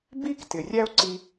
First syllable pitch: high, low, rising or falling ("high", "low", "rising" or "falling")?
high